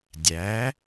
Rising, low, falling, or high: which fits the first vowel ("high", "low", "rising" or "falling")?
rising